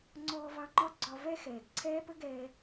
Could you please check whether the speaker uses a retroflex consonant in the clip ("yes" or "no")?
no